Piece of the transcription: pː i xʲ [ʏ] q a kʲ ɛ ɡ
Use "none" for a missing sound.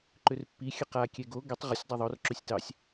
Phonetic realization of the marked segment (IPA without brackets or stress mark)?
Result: ə